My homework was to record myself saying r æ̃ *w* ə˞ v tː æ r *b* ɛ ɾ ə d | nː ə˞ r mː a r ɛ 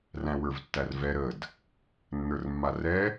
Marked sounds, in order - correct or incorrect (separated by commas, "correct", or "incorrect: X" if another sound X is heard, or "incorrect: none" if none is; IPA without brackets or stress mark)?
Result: correct, incorrect: v